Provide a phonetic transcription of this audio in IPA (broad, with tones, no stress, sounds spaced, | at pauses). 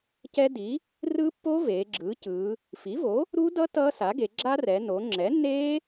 c ɛ˦˥ d i˩˥ | r ɯ˦˥ pː o˦˥ v eː˩˧ ɡ͡ǁ ɯː˩˥ c ɯː˩˧ | f i˩˥ v o˩˥ | ɾ u˦˥ d ʌ˦˥ t ʌː˦˥ s a˩˥ ɡ e˩˧ ɡ͡ǁ a˦˥ r ɛ˩˧ n o˩˧ ŋ͡ǁ ɛ˩˥ nː eː˦˥